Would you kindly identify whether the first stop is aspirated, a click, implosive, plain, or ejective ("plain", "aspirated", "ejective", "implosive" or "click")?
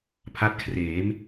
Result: aspirated